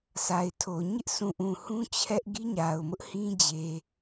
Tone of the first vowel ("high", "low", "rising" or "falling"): low